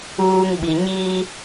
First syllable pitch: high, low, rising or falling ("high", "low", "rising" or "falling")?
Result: high